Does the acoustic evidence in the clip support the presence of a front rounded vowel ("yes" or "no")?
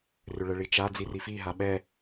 yes